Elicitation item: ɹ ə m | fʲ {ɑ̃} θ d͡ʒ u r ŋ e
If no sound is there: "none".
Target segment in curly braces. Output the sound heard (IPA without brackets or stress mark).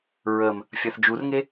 ɑ